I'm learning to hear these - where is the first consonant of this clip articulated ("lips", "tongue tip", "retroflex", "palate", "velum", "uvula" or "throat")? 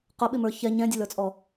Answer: uvula